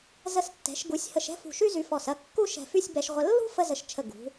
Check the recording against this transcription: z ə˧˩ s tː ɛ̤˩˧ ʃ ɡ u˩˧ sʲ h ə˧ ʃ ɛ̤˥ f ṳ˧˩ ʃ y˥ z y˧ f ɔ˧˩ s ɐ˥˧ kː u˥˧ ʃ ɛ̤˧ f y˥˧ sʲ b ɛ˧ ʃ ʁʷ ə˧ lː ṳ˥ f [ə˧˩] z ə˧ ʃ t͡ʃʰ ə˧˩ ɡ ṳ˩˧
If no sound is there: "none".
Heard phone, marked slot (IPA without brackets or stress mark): ə˥